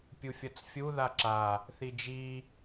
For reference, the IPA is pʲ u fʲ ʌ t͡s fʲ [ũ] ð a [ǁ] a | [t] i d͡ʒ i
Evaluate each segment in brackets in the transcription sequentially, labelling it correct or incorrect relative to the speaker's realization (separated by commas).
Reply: incorrect, correct, incorrect